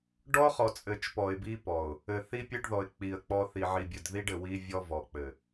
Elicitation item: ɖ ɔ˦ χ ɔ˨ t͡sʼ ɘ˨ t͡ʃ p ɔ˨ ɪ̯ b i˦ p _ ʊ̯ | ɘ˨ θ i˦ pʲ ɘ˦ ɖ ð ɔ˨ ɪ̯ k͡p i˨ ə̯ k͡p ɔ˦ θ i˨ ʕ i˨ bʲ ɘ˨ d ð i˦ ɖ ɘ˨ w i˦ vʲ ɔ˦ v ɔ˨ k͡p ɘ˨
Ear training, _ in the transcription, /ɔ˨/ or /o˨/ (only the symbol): ɔ˨